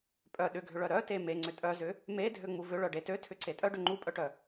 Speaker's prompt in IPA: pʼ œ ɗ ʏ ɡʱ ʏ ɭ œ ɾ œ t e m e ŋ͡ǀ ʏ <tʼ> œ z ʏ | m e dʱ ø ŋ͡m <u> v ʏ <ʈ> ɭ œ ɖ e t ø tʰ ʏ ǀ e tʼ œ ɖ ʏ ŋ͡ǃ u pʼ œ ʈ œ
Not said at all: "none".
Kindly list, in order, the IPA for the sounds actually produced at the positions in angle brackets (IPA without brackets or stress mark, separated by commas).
tʼ, u, none